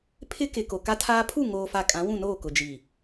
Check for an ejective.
present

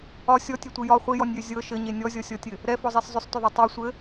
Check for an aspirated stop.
absent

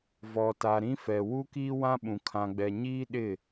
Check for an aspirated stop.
present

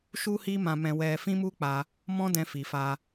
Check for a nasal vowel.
present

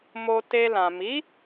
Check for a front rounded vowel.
absent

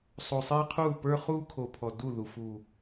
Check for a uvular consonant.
present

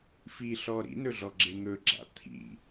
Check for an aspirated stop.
present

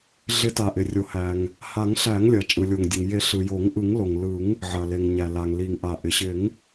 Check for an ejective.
present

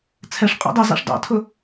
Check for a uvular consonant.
present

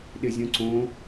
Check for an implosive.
present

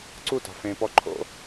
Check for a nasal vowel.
present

